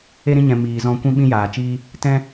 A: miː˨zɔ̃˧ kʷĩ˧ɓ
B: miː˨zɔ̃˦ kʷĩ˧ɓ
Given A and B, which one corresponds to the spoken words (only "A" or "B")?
A